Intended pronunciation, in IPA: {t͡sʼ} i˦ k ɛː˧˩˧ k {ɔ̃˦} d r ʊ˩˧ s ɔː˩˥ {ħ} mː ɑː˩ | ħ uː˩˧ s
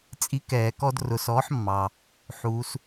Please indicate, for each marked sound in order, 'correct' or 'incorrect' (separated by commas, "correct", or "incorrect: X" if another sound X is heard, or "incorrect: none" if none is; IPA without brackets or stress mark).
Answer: correct, incorrect: ɔ˦, correct